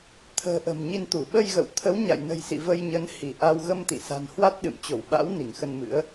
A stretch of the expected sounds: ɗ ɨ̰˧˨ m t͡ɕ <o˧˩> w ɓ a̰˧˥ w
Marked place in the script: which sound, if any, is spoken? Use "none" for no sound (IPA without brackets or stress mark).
o˧˩